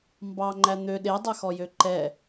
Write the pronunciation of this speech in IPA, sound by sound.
m b ɑ ŋ͡ǃ æ n̪ ø ɗ e dˤ ɛ x ɔ j ø ǃ ɛ

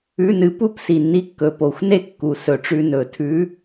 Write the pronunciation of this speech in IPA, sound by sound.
ʉ˧˥˧ n ɨ˧ p u˥˧ p s i˨˩ nː i˧˥ kː ɵ˨˩ p o˨˩˦ xʷ n e˥˧ kː u˨˩ s ɵ˨˩ ʈ͡ʂ ʉ˧ n ɵ˨˩˦ tʰ ʉ˧˥

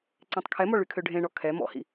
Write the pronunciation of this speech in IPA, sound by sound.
ǀ ẽ tˤ kʰ ɛ m ɔ ɭ y kʰ ø ɖʱ ẽ ɳ ɔ kʰ ɛ m ɔ̰ h ḭ

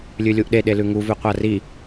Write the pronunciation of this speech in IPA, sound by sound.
lʲ ʉ lʲ u ʔ ɗ e ɗ e l ʉ ŋ u v ʉ qʷ a r i

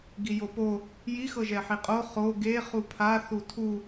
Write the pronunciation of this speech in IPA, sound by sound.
ɡ i j o p o | j i x ɤ ʒ ɛ ħ i qʼ o χ o ɡ e χ u pʰ a θ u tʰ u

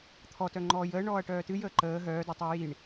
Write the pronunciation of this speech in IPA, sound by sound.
t̪ʰ ɔ t œ ŋ͡ǃ ɔː j əː ɳ ɔː ɐ̯ ʈ œː t ɨ j əː ǃ əː ɦ œː d ɔ tˤ e j i ɳ

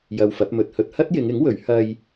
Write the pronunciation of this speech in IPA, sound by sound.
j ɐ˧ w f ɐ˨˥ p̚ m ɵ˨ t̚ h ɵ˧ t̚ h ɐ˥ t̚ j ɪ˨˧ ŋ ɪ˨˥ ŋ w ɵ˨˥ ɥ h ɐ˧ j

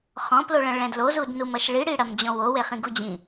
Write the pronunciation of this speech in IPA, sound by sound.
χ ɔ̃ p l o ɭ ɐ̃ ɭ ɛ̃ d l o z u d n u m ɐ ʃ ɭ i ɽ i ɽ ɐ m d͡ʑ ɔ̃ w o w e χ ĩ ɡ u d͡ʑ ĩ

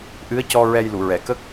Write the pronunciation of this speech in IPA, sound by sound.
ʔ ɨ˧˥ ə̯ c ɔ˧ ɹ ɛ˧ j l u˨˩˨ ɹ ɛ˨˩˨ k ə˦˥ k̚

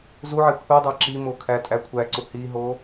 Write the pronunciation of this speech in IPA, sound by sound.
z u ʕ e kʷʰ i dˤ æ ǁ i m o kʰ æ tʼ æ kʷʰ æ ǀ u h i ɦ o

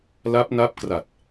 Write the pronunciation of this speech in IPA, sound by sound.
l a˦˥ p̚ n a˦˥ p̚ k r a˨˩ t̚

